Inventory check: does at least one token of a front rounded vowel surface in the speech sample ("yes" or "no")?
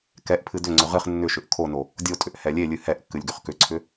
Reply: yes